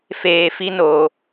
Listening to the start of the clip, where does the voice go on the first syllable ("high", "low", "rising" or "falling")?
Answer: low